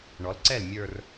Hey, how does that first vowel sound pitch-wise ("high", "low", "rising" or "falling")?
rising